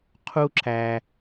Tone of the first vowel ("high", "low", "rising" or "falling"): high